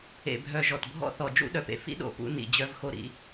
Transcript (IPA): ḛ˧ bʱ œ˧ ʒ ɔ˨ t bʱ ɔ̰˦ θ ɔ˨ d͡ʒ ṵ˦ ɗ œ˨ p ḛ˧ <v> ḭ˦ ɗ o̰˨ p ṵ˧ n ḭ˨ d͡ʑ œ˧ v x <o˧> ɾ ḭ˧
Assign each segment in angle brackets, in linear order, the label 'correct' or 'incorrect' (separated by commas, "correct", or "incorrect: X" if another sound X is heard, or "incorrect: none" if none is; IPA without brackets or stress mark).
incorrect: f, correct